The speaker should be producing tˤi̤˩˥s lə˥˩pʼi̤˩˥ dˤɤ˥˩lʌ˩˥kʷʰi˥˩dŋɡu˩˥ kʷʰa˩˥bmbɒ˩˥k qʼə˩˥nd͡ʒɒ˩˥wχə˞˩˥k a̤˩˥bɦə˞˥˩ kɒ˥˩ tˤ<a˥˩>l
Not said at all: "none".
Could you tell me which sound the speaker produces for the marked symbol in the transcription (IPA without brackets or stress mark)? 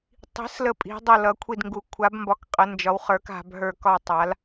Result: a˩˥